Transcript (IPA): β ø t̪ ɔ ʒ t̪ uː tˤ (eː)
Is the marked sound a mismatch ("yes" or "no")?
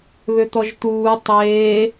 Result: no